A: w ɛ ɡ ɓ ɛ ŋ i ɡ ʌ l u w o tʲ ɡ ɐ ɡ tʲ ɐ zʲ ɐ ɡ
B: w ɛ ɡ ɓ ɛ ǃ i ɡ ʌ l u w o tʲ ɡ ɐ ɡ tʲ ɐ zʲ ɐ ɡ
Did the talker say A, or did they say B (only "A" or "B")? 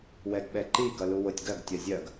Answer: B